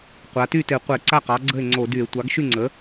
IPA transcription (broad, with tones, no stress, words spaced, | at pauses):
qʷa˩˧ty˥˩te˧˩˧ qʷɛ˧˩˧ǀa˥˩qɑ˩˥ ɡ͡ǀə˥˩e̯ŋ͡ǀo˧˩˧dy˧˩˧e̯ tʷɑ˩˥ɡʃy˥˩ŋ͡ǀə˩˥